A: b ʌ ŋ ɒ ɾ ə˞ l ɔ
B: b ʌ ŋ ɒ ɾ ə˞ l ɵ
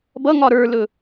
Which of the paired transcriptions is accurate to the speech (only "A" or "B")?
B